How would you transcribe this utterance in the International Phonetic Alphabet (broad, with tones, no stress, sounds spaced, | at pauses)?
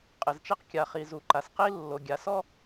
qʼ ɪ˩ z t͡ʃ ɛ˥ q kʲ a˩ χ i˩ z u˩ ǃ a˩ s q i˥ lː o˩ ɡʲ a˩ s ɔ˥